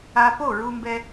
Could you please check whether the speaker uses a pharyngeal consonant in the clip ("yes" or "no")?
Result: no